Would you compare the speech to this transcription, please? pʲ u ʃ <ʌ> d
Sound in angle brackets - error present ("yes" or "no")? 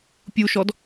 yes